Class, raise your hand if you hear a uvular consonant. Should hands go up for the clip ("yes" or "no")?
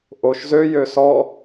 no